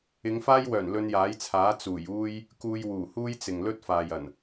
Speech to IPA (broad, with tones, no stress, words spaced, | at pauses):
ɪ˨˧ŋfaː˥jwœː˨˩n lɵ˧njaː˨˥jt͡sʰaː˨˥ t͡suː˨˩juː˥j | kuː˧jwuː˨˩huː˥jt͡sɪ˨ŋ lɵ˥t̚faː˨j ɐ˨˩n